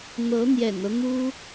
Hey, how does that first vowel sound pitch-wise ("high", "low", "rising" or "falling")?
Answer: rising